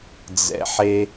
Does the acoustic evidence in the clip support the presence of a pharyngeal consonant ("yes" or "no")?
yes